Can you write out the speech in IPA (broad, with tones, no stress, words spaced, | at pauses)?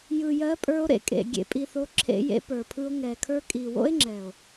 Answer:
jɯ˨jɜ˨˦pʼə˞˧o̯ ɾḛ˨kʼḛ˨ ɡʲḛ˨pʼi˨θo˨˦ ǁʰḛ˧jḛ˧pə˞˨pʰɯ˧o̯ ŋɛ˨ kʰə˞˧kʼi˨wo̰˦e̯ŋ͡ǁɛ˨o̯